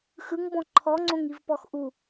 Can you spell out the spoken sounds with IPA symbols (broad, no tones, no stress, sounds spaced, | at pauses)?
x ɯ ŋ b ɔ̃ ǃʰ ɔ ŋ͡ǀ õ ŋ i v p ɔ x ʔ u